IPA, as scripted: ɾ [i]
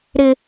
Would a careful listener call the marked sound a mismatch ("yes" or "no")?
yes